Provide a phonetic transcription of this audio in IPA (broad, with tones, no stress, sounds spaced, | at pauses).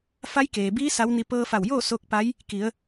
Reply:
f a˧˥ j k eː˩ b iː˧˥ s a˧˥ w n i˧ p ɤː˧ f a˧˩ w j oː˥˨ s o˧˥ k̚ p a˧˥ j | k i˩˧ ə̯